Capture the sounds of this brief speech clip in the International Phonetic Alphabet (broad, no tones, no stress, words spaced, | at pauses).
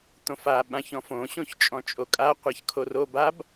t̪õfa ɓãçɔ̃fõ ɕõçt͡ʃʼɔ̃t͡ʃʼokʼa qʷaçkʰorob ab